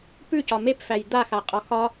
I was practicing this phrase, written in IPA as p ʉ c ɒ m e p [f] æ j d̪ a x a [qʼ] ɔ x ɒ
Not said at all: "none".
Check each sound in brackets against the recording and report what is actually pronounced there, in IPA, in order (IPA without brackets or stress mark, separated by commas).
f, qʼ